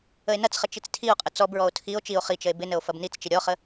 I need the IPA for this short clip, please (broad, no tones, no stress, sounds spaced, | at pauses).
ə e̯ n ɐ t͡s χ ə t͡ʃ i t͡s tʰ i o̯ qʼ ə t͡s ɔ b ɹ ɔ o̯ tʰ i o̯ t͡ʃ i o̯ χ i t͡ʃ ə e̯ b ɪ n ə o̯ f ɐ b n i t͡s t͡ʃ ɪ ɾʲ ɔ χ ə